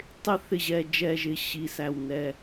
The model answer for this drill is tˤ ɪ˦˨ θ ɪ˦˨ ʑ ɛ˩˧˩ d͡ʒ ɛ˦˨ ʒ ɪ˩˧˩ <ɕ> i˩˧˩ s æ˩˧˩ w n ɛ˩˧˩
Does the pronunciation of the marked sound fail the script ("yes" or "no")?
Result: no